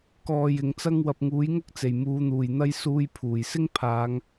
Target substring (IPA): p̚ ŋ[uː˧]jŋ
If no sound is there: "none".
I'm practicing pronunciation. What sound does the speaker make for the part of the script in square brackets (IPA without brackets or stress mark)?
uː˨˥